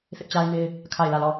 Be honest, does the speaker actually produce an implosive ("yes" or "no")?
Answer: no